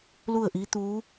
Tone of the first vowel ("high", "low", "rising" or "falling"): falling